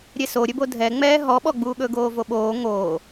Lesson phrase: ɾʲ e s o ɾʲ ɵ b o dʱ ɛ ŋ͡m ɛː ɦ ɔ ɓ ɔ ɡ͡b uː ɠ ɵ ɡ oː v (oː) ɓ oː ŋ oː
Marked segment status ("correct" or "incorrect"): incorrect